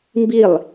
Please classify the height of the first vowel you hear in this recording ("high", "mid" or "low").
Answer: high